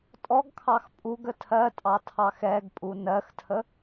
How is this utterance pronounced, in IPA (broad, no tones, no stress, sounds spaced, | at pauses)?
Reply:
tʼ ɔ ɡ kʰ ɑ x pʼ u ɡ ə tʰ ɜ tʼ ɑ tʰ ɑ x ɛ ɡ pʼ u n ɜ x tʰ ə